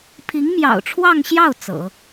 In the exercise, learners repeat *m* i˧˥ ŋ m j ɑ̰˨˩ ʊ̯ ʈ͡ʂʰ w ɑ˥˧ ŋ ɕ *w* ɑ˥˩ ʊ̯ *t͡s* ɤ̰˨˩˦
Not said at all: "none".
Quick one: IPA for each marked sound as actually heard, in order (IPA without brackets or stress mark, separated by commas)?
pʰ, j, t͡s